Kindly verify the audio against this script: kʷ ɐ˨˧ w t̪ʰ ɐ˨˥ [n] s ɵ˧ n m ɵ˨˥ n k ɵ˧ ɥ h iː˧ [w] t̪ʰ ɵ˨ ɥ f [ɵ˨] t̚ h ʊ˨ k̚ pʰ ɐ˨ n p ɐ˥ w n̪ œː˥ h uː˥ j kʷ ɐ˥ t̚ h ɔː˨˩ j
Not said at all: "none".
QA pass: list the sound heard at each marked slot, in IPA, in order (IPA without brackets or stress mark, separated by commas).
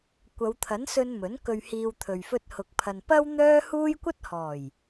n, w, ɵ˧